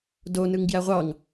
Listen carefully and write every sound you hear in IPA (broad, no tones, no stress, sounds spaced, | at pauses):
d o n ɯ ŋ ɡ j æ ʁʷ ɑ ŋ